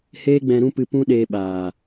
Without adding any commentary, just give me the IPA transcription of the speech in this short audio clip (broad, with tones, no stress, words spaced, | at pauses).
heː˦ɡ͡bɛ̃˧ ɾũ˦pɨ˧ pũ˦ɗeː˧ɓaː˨